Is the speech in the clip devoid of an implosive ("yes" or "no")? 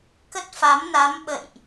no